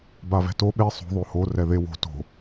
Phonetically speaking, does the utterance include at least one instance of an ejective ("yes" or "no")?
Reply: no